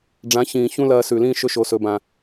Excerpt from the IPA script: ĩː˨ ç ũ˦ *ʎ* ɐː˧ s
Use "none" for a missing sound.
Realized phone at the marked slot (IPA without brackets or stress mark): l